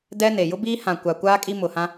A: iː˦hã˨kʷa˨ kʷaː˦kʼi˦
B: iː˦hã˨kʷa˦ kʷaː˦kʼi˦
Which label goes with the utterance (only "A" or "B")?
A